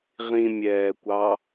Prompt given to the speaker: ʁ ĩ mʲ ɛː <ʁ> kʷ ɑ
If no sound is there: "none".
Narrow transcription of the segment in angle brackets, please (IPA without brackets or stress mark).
none